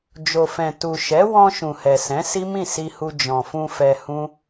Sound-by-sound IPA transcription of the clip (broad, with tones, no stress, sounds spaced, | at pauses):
d͡ʒ o˨ f ɛ̃˨ t u˨ ʃ ɛ˨˦ w ɔ̃˧ ʃ ũ˨ h ɛ˨ s ɛ̃˨˦ s i˦ m ĩ˦˨ s i˧ h u˧ d͡ʒ ɔ̃˨ f ũ˧ f ɛ˧ h ũ˦